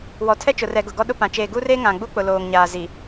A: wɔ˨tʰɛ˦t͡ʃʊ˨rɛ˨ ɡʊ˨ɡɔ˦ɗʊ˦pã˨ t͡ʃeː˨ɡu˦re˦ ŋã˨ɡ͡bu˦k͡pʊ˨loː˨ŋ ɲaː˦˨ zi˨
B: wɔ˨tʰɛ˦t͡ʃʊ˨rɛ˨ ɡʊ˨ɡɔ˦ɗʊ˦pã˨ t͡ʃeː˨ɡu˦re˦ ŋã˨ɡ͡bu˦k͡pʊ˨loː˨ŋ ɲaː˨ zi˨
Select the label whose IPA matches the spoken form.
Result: B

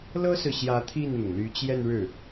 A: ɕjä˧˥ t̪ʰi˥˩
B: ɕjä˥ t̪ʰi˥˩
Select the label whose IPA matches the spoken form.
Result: A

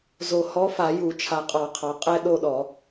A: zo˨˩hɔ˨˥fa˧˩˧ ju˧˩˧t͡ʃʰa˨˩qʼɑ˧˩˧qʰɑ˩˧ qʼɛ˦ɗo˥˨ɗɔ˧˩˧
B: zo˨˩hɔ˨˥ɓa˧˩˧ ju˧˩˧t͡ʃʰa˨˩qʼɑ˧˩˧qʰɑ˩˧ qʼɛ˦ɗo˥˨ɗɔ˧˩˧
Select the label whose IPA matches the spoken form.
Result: A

